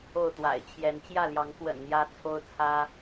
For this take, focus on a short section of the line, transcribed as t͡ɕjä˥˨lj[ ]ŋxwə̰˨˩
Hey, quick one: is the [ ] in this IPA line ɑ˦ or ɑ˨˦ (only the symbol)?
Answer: ɑ˨˦